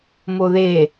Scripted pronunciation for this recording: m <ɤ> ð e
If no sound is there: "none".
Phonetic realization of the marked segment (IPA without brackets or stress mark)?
o